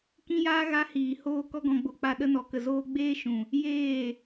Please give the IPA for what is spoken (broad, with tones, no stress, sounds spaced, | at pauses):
k ĩ˦ j aː˦ ɣ a˦ h iː˨ h oː˧ k ɔ˦ ɡ ɔ̃˧ ɡ͡b o˧ k͡p a˧ ɗ ə˧ n ɔ˨ k ə˨ z oː˧ ɡ͡b eː˦ ʃ ũ˨ | j eː˦˨